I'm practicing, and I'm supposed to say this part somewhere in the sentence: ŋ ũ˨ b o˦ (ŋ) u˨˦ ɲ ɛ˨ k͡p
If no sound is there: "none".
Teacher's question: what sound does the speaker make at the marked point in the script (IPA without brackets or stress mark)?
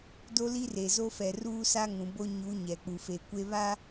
ɲ